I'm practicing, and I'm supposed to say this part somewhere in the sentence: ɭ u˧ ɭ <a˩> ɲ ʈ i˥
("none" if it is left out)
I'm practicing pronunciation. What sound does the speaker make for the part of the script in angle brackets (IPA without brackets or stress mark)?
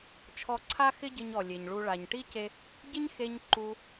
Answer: a˩